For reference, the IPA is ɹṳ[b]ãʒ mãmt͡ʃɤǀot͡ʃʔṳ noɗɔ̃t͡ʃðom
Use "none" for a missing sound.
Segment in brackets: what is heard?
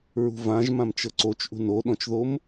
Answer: v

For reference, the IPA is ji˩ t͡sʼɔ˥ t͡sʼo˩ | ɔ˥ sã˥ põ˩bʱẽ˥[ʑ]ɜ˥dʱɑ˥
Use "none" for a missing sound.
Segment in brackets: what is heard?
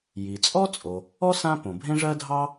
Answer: ʐ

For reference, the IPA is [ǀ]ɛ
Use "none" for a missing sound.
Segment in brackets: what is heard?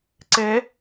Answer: ǀ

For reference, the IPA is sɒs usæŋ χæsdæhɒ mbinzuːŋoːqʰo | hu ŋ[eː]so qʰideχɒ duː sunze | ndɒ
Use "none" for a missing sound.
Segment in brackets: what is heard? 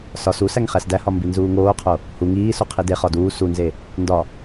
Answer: iː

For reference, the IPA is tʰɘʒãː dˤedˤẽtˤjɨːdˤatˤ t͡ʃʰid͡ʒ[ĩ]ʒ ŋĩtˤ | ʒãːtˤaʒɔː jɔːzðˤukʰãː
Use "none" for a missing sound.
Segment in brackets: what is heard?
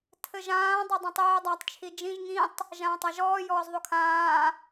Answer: ĩ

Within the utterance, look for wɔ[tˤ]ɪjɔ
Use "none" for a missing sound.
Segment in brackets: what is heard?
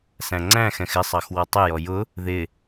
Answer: tˤ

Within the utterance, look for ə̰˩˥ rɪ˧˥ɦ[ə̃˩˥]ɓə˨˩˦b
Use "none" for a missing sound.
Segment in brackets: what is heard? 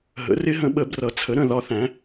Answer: ə̃˩˥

